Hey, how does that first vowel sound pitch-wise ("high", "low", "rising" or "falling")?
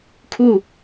falling